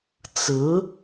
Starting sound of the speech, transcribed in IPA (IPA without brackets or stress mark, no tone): t͡s